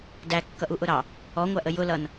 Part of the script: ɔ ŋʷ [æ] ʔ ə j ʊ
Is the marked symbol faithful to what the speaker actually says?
yes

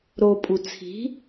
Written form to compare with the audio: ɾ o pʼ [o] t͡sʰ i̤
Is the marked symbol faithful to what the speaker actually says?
no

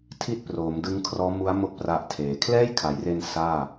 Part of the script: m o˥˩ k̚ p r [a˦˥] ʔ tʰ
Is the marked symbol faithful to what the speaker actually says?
yes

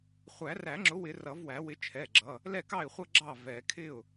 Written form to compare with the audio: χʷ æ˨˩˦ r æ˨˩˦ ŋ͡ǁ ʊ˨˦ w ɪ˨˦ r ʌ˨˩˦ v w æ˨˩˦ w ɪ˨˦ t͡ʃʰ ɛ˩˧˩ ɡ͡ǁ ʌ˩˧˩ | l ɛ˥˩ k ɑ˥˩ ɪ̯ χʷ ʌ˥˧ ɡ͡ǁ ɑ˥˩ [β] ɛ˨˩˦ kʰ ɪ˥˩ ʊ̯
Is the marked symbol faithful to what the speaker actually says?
no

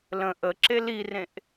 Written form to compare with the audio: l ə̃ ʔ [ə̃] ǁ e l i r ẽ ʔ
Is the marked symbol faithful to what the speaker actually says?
no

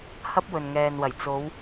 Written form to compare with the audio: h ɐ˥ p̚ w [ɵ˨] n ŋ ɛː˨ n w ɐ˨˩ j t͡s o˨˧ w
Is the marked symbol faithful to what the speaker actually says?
yes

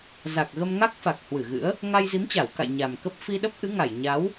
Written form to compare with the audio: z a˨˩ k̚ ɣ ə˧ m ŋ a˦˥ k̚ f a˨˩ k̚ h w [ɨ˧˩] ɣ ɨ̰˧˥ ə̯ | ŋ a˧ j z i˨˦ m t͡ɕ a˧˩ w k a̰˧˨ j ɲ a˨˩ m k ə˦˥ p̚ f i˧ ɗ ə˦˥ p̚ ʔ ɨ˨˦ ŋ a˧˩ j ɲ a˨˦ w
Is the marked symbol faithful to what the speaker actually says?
yes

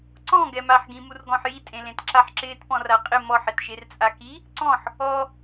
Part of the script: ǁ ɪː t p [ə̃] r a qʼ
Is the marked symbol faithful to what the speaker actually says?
no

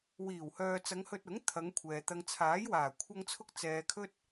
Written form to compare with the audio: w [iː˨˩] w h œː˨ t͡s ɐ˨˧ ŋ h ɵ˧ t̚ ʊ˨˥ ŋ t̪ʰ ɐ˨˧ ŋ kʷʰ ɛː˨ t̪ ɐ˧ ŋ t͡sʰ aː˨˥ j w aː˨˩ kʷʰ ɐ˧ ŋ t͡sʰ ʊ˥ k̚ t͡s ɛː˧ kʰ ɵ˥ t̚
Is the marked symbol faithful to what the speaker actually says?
yes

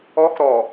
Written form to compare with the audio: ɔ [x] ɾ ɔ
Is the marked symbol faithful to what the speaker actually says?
yes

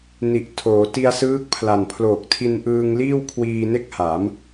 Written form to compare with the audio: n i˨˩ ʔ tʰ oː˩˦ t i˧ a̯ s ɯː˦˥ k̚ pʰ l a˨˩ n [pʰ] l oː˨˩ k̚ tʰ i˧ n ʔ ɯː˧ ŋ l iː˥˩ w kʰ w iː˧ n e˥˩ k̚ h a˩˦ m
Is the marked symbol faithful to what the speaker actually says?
yes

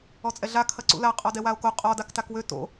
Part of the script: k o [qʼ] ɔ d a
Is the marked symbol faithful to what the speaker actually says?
yes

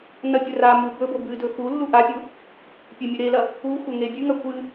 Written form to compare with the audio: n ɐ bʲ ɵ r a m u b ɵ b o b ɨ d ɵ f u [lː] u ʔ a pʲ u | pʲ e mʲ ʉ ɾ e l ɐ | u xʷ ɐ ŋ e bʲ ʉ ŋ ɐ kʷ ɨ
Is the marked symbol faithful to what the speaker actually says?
yes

